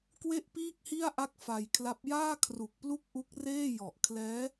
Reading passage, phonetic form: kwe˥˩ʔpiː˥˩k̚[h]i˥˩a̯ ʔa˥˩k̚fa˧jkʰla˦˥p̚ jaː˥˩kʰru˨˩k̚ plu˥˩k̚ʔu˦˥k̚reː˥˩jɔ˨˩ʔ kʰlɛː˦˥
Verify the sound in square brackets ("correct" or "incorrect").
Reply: correct